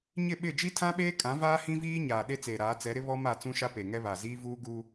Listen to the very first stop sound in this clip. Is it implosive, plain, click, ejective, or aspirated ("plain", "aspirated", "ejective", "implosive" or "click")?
implosive